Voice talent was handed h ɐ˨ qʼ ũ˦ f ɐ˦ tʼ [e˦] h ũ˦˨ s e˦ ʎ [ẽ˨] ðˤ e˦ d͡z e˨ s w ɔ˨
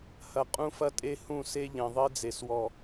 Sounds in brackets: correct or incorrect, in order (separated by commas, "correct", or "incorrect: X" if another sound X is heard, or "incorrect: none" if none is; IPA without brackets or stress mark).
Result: correct, correct